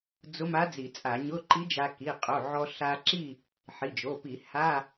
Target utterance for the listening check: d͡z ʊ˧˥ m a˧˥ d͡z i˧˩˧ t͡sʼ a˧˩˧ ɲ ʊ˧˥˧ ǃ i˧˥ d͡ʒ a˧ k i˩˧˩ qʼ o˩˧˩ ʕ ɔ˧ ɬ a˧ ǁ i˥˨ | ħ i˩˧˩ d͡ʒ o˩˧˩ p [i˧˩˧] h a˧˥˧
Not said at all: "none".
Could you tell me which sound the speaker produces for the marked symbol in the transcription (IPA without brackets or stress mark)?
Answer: i˧˩˧